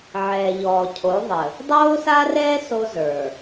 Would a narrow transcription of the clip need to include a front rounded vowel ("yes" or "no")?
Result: no